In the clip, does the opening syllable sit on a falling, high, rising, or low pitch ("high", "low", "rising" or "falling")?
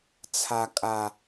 low